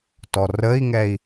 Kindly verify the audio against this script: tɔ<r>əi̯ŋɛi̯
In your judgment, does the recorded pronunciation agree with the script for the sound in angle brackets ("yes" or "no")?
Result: yes